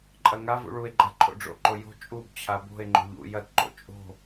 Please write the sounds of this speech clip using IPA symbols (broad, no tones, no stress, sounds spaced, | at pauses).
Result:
ǃʼ ɐ ŋ a v ṵ ɭ u e̯ ɡ͡ǃ a ǃʰ o̰ ɖ͡ʐ o̰ ǃ o j o̤ t͡ʃʼ u b t͡ɕʰ a b o̤ e̯ ŋ͡ǃ o̤ ʎ ṵ j ɐ t ǃ o̰ t͡ʃʼ o̤